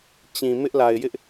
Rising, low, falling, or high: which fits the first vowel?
low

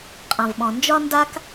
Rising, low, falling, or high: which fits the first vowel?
low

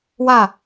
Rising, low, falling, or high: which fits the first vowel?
falling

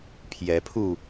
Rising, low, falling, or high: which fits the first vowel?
rising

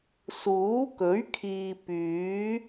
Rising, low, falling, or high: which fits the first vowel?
rising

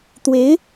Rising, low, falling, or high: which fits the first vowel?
rising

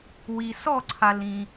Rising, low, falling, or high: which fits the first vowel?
low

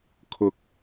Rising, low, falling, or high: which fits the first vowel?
low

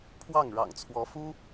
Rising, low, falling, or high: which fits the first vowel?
falling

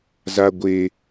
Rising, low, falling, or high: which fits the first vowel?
low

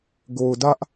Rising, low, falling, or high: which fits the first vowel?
low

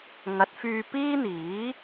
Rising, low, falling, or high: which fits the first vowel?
rising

